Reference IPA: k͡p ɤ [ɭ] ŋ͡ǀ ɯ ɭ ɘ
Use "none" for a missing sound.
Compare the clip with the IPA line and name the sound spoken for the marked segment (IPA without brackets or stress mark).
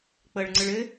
ɭ